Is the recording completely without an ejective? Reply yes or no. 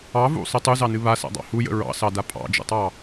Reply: no